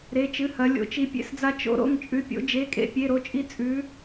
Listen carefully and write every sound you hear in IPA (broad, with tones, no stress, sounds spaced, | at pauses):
ɾ e˧˥˧ t͡ʃ ɨ˧˥˧ h ɐ˧˥ lʲ o̰˧˥ t͡ʃ i˧˥ pʲ ḛ˥ s d͡z a˥ t͡ʃ o̰˧˥ ɾ o̰˧˥˧ ŋ t͡ʃʼ ʉ˧˥ pʲ o̰˧˥ d͡ʒ e˧˥˧ kʼ ḛ˥ pʲ e˧˥˧ ɾ o˥ t͡ʃʼ i˥ t͡sʼ ʉ˧˥